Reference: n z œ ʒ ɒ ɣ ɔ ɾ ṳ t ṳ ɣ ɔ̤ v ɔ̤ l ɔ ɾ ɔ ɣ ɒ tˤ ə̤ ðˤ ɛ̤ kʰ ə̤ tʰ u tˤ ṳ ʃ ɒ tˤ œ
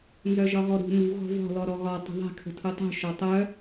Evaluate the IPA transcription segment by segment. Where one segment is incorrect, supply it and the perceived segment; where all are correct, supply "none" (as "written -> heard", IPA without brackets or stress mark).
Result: t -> n